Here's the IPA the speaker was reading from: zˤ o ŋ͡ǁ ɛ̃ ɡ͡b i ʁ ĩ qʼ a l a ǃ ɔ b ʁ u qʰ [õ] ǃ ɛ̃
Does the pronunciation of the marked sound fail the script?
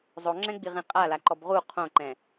no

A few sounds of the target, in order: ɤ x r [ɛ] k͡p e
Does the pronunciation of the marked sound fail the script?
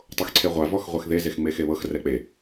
no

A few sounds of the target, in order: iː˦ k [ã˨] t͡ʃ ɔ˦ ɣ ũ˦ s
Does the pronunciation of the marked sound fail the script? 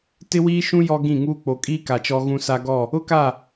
yes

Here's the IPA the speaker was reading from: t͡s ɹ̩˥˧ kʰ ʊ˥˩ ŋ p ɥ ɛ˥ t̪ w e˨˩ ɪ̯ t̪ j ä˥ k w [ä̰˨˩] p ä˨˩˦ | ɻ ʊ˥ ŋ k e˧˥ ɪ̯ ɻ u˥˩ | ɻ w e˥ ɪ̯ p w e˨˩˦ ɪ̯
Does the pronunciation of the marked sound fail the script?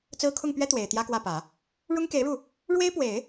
yes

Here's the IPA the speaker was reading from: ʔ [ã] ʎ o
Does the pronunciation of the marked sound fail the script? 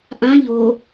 no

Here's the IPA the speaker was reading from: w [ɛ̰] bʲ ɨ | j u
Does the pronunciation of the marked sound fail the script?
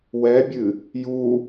yes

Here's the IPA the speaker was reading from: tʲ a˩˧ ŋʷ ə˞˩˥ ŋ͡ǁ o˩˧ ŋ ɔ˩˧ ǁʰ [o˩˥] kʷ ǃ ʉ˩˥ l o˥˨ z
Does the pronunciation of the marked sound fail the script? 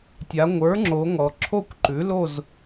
yes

